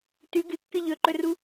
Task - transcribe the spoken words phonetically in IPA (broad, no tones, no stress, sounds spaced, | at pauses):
t ʉ ɡ ɨ kː ɨ ʎ ɵ ǃ ɵ r u